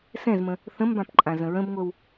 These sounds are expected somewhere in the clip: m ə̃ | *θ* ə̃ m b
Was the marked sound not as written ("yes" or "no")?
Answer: no